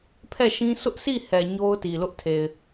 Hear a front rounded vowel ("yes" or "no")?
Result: no